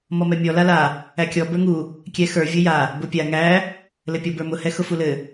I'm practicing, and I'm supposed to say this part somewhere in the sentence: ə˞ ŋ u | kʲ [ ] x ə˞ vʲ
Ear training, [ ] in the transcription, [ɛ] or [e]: ɛ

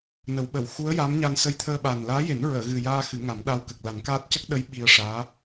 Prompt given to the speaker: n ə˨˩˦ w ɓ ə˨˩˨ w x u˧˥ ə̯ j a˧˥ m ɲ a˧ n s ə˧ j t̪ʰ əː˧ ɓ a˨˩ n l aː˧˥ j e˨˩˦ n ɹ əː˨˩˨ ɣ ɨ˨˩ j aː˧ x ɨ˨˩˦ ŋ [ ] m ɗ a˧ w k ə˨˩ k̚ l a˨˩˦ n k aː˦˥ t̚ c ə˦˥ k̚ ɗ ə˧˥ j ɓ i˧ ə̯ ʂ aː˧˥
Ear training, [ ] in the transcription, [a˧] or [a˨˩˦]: a˨˩˦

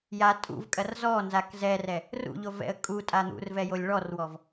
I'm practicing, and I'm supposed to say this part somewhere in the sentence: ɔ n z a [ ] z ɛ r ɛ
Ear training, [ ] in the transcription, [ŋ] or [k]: k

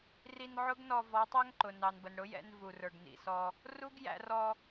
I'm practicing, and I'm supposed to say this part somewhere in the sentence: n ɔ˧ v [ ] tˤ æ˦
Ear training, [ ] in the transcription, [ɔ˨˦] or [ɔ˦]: ɔ˨˦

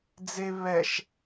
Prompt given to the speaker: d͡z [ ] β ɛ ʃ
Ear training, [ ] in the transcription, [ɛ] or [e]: e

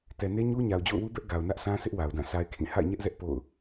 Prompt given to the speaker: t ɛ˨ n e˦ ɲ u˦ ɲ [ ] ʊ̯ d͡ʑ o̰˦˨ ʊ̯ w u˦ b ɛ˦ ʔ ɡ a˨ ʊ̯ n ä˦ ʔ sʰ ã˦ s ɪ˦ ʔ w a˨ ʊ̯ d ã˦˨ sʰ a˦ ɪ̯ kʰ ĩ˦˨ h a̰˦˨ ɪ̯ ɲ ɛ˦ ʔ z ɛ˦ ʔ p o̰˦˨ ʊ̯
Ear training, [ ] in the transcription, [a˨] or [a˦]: a˨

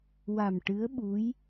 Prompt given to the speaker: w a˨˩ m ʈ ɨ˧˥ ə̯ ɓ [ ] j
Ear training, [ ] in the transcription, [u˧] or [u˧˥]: u˧˥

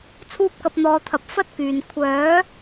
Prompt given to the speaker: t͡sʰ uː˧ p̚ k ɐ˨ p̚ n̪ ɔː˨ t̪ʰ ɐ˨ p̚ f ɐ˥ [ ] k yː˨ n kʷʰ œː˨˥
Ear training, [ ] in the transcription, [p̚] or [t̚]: t̚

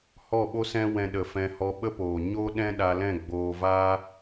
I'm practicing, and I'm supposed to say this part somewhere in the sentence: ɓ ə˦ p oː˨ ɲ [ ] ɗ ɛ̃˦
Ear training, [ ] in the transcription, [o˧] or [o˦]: o˦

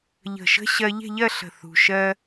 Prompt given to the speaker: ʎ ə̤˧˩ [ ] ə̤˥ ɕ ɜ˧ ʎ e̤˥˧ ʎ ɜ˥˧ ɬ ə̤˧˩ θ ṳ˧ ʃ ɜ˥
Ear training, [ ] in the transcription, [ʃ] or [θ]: ʃ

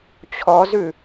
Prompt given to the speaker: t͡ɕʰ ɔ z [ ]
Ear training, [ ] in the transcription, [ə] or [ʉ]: ʉ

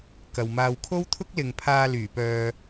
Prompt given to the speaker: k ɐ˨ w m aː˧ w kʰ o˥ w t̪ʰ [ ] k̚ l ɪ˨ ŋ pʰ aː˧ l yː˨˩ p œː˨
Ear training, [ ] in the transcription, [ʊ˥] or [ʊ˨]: ʊ˥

